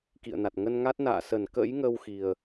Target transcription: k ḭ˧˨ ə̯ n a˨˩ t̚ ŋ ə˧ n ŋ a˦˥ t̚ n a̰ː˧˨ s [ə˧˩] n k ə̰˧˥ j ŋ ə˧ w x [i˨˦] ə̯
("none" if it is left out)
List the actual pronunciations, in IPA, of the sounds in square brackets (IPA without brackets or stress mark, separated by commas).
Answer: ə˧˩, i˨˩